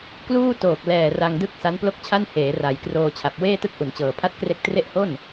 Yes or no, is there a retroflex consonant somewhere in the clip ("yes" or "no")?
no